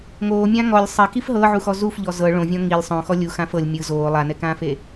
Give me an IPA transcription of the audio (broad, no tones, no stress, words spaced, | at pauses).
ŋoːmʲã ŋɔlʲ sˤekif ɦɤʕuxɔ zufʎɔ zɤ ɭõvʲɔ̃ ŋilʲ sˤõxɔ lʲuxãf ɤlʲ mʲɯ zoː lˠanɛkãːfe